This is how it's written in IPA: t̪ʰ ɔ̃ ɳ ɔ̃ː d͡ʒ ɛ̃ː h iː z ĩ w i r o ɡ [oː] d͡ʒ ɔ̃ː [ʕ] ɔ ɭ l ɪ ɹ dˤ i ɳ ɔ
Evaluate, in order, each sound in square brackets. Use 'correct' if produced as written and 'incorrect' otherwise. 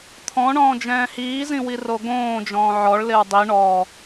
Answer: incorrect, correct

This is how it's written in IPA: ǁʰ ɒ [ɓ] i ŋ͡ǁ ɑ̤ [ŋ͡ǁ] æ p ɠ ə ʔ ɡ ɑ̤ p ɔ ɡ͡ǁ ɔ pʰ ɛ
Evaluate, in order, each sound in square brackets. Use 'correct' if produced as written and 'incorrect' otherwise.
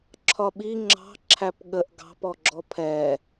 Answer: correct, incorrect

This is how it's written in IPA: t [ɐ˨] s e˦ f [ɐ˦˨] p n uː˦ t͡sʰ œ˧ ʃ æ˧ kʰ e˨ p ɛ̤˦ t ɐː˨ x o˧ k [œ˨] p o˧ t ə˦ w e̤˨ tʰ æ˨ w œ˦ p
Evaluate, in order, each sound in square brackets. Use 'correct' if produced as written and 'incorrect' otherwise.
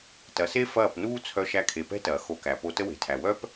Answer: correct, incorrect, incorrect

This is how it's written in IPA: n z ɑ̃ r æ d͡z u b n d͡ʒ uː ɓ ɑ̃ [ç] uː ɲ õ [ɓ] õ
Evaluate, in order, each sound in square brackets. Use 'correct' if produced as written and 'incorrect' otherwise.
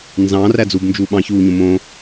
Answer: correct, incorrect

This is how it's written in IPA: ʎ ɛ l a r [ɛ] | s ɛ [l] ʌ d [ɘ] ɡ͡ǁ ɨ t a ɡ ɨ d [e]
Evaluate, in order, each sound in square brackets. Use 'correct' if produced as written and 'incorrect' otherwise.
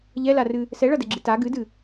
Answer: incorrect, incorrect, correct, incorrect

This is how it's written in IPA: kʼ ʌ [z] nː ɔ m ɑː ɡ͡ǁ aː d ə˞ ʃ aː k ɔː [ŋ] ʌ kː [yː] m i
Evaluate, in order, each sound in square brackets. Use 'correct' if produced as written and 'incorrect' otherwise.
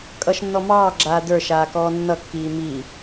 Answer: incorrect, incorrect, incorrect

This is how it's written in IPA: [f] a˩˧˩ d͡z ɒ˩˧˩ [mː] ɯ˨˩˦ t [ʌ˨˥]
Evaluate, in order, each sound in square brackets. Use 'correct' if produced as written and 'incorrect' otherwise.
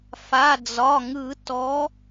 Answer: correct, incorrect, incorrect

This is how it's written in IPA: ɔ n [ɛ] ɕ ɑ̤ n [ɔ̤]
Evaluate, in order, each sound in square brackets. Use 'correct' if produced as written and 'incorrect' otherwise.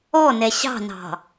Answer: correct, incorrect

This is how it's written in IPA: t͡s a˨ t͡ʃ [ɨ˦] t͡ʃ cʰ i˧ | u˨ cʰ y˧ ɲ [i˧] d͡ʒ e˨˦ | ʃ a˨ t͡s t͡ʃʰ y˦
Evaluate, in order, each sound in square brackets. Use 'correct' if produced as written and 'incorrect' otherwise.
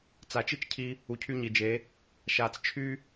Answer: incorrect, incorrect

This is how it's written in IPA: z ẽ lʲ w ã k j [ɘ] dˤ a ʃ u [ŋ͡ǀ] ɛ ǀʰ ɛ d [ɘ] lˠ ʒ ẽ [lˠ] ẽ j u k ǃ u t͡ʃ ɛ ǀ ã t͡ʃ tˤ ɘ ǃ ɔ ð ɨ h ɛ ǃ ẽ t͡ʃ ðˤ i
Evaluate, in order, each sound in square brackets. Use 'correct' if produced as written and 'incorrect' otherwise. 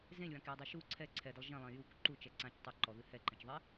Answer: correct, incorrect, correct, correct

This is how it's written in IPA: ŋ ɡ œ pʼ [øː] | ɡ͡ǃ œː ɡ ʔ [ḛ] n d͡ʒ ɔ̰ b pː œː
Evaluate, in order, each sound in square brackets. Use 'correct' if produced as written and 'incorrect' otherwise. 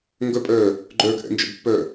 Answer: incorrect, incorrect

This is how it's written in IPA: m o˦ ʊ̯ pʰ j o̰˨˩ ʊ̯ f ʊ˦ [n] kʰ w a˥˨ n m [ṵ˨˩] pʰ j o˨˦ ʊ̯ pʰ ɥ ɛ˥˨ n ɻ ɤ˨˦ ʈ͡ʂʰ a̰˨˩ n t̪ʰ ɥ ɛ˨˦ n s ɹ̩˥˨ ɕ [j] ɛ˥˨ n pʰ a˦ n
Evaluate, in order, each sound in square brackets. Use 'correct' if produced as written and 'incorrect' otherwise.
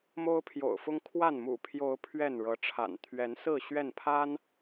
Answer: incorrect, correct, incorrect

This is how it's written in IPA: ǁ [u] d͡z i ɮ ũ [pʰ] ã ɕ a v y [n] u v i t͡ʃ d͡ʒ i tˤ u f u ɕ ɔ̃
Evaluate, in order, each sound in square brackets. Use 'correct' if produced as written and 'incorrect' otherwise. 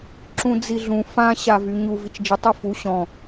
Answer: incorrect, incorrect, incorrect

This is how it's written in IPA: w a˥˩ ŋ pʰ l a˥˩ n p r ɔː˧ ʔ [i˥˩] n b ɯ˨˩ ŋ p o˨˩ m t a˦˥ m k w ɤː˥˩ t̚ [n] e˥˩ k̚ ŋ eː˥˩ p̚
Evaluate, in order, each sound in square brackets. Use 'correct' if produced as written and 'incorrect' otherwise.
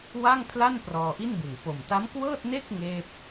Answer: correct, correct

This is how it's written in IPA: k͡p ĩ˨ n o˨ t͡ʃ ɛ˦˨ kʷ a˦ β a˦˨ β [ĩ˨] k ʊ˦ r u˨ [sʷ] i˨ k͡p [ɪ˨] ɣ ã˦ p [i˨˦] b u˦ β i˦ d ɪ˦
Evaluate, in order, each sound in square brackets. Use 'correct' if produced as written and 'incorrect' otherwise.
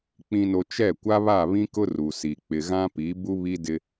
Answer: incorrect, incorrect, correct, correct

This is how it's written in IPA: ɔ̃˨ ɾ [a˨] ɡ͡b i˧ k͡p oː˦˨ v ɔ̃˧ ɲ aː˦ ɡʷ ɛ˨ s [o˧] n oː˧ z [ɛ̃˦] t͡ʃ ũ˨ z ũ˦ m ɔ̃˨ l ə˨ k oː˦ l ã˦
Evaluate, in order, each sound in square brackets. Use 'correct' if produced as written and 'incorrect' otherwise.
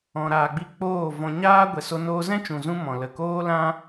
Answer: incorrect, correct, correct

